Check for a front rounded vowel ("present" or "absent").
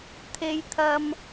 absent